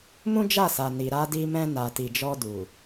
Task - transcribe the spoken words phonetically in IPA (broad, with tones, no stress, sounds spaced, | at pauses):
m ũ˦ d͡ʒ a˦˨ s a˨ n i˨ ɾ a˧ d i˧ m ɛ̃˧ n a˨ t i˨ d͡ʒ ɔ˧ d u˨